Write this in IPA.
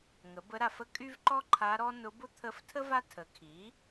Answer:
ŋə˩˥bə˧˥ɾa˨fə˥ kʼy˥vǃɔ˥ ǃʰa˧˥ɾɔ˥ nʊ˧˥bʊ˥ t̪ʰə˧˥ftʰə˥ va˥ tʰə˩˥ kʰi˩˥

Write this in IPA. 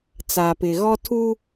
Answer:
t͡sa˨pɪ˨ ɣɔ˦ tʰu˦

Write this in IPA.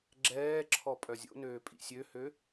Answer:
ɡ͡ǁɛːǁʰɔ pʼœzʲo̰nøː pʼḭsʲøhø

